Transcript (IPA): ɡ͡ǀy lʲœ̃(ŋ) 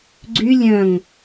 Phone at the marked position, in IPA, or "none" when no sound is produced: ŋ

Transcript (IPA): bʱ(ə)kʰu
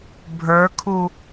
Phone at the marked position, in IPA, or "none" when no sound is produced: ə˞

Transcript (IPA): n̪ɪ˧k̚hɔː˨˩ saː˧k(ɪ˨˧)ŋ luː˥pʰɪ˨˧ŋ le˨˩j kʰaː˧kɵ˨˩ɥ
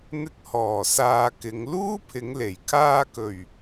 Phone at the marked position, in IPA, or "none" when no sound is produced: ɪ˨˧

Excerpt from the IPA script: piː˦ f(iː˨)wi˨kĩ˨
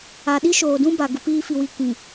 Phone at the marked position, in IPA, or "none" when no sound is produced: i˨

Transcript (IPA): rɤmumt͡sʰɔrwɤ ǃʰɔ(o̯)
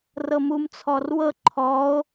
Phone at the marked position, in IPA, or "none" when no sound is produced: o̯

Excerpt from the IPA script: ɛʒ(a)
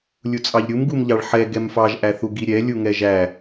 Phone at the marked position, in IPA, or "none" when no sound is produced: æ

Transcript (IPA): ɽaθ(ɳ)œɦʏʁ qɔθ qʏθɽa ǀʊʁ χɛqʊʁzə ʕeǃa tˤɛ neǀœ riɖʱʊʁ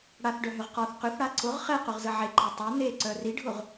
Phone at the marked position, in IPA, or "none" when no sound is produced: ɖ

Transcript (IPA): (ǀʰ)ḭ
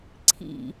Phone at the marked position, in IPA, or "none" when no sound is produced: ǀʰ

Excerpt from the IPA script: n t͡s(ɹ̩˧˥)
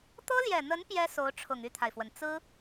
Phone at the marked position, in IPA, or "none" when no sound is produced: ɹ̩˥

